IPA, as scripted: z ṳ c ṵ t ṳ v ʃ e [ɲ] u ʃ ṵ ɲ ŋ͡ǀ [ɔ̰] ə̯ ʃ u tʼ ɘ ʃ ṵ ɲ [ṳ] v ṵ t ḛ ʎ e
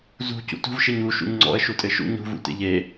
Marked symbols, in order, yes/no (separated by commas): yes, yes, yes